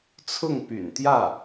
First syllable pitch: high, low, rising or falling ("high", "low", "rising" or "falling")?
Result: falling